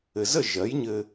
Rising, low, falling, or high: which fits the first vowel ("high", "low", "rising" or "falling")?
low